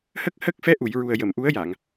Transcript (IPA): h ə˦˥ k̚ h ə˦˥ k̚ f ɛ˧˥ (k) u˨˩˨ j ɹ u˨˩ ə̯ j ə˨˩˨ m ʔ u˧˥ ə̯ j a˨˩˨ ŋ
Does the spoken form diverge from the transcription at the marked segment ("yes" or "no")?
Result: yes